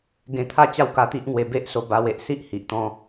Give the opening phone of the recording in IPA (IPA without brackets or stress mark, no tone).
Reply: ɡ